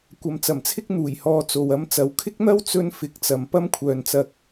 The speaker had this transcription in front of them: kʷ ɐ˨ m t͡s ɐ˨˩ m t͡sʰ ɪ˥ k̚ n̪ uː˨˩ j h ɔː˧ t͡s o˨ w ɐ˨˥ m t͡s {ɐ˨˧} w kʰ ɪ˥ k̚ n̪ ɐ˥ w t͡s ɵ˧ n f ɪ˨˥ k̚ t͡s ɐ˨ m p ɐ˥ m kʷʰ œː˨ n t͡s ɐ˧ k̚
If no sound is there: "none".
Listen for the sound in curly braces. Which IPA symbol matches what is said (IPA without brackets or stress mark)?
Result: ɐ˨˧